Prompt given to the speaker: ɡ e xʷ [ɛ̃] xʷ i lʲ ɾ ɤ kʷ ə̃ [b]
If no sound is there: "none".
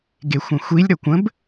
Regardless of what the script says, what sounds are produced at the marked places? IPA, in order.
ɛ̃, b

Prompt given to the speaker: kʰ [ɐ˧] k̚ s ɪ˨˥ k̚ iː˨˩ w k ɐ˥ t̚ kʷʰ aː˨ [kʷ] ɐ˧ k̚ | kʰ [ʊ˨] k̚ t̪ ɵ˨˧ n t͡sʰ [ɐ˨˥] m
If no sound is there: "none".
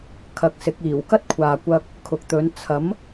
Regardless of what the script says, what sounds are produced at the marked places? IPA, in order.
ɐ˧, kʷ, ʊ˨, ɐ˨˥

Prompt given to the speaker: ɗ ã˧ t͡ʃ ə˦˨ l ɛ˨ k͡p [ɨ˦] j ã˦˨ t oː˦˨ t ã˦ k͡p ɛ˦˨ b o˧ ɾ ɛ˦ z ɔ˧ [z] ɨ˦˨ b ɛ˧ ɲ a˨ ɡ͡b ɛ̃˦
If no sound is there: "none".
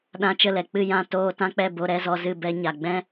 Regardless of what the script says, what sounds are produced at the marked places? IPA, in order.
ɨ˦˨, z

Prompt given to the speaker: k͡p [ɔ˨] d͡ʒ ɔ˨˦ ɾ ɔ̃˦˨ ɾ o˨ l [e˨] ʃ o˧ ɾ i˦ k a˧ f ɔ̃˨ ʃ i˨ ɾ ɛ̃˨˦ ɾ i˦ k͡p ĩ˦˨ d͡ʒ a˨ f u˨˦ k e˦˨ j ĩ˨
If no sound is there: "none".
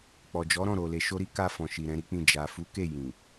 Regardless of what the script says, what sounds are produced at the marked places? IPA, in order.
ɔ˨, e˨

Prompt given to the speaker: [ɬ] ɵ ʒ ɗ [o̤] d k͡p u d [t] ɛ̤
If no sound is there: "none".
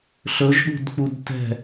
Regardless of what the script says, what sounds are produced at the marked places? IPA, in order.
ɬ, ṳ, t

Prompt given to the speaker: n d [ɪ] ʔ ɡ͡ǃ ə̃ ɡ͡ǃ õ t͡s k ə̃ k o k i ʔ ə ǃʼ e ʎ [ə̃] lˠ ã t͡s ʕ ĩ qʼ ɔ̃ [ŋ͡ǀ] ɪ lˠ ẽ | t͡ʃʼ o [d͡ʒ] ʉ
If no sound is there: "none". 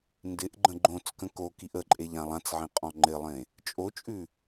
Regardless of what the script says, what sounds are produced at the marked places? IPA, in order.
ɪ, ã, ŋ͡ǃ, t͡ʃʼ

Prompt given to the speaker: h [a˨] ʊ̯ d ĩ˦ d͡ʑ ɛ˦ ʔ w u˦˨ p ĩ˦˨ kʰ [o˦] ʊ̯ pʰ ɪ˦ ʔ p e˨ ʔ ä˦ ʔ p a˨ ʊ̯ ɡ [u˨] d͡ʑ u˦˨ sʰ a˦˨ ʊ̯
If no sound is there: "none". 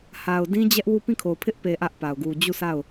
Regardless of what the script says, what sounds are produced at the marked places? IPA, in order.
a˨, o˨, u˨

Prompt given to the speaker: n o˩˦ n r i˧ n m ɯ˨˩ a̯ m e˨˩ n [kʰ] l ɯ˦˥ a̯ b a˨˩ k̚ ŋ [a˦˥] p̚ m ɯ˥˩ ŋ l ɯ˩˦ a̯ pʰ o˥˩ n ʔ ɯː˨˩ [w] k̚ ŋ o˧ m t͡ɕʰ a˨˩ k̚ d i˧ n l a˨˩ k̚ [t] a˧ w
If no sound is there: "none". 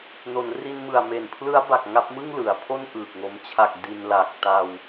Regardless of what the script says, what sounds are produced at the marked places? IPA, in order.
pʰ, a˦˥, none, t

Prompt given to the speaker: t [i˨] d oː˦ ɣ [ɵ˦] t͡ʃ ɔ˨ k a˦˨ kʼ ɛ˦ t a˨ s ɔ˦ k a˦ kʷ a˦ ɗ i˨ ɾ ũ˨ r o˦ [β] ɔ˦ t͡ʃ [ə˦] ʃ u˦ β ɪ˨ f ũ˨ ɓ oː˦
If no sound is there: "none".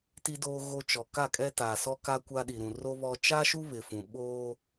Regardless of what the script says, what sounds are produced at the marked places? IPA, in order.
i˦, o˦, β, a˦

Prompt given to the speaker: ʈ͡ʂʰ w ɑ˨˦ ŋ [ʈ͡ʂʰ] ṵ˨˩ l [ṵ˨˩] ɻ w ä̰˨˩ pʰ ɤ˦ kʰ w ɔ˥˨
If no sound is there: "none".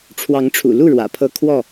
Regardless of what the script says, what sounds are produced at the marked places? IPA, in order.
ʈ͡ʂʰ, u˥˨

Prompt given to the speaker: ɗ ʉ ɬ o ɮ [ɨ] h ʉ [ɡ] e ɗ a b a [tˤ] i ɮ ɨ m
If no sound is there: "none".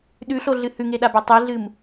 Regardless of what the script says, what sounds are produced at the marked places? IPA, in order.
ɨ, ŋ, tˤ

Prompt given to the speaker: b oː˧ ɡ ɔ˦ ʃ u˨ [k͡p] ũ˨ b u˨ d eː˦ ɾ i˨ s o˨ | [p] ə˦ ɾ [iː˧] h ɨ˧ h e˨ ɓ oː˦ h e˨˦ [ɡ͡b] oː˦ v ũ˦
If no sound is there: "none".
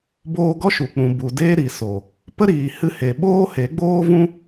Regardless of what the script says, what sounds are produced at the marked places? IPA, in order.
k͡p, p, iː˨, ɡ͡b

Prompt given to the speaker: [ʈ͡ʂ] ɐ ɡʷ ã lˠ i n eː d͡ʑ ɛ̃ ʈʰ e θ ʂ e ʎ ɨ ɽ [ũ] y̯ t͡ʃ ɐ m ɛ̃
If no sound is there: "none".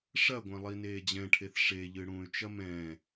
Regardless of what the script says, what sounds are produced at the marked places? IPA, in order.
ʂ, ũ

